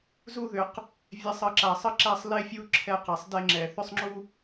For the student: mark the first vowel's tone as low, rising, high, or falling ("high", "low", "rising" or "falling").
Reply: high